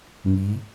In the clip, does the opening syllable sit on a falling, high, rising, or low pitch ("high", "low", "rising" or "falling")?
rising